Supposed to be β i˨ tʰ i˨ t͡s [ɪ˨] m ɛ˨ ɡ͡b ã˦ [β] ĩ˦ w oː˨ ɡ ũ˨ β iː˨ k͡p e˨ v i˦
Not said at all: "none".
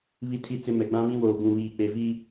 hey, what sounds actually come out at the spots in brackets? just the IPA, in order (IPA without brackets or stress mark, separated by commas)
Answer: ɪ˨, β